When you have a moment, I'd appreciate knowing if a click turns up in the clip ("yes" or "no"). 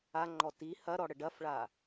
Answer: yes